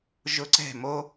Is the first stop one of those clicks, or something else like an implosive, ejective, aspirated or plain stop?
click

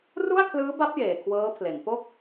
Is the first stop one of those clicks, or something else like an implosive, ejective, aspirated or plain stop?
aspirated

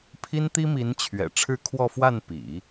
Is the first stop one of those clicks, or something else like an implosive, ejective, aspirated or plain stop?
aspirated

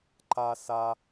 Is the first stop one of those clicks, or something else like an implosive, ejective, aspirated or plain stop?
click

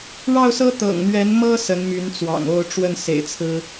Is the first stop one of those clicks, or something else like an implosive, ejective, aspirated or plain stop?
plain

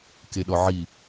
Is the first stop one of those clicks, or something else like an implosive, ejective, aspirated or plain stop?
plain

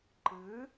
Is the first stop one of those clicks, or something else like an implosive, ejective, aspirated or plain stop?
click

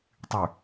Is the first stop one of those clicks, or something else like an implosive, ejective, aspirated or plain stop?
plain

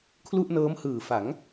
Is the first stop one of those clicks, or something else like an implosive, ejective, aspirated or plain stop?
aspirated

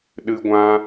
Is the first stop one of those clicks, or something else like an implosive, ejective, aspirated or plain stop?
implosive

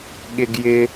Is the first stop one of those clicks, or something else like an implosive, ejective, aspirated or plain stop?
implosive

